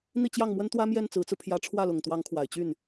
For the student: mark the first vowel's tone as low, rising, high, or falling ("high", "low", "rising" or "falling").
falling